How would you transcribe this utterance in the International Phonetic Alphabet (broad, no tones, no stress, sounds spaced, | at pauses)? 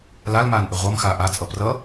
l a l m aː n ʔ ɪ ʁʷ ʌ m x aː ʔ a t͡sʼ ʌ p r ʌ